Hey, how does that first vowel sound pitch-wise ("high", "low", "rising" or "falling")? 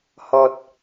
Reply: low